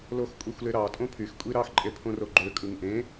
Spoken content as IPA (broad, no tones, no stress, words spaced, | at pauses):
loxkʷʼexʷleɾɑ tʼõpʰyx kʷʼiɾɑx ǃʼepʰõroɡ͡ǃø kʼɯŋʔẽ